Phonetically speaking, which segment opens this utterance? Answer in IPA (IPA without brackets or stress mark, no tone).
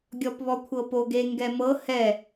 ɡʲ